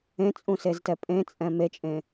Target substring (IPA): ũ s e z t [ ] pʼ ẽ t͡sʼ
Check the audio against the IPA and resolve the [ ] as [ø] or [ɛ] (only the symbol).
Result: ɛ